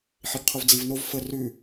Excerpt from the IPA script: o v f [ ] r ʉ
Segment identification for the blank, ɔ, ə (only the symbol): ə